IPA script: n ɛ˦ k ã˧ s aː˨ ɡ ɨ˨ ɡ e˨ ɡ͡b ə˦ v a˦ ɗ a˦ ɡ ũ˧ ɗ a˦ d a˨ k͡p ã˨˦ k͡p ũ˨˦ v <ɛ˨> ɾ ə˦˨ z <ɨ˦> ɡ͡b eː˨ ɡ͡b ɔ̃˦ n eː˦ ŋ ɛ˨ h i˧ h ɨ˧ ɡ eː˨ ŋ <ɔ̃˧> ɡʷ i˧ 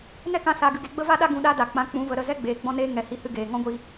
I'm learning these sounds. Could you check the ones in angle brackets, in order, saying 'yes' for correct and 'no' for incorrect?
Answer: no, no, no

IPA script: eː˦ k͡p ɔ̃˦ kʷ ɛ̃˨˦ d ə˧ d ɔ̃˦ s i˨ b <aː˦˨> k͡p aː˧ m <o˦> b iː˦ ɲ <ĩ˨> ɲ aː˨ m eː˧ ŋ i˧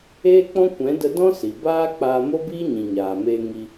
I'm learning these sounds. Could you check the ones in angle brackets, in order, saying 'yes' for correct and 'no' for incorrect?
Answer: no, yes, yes

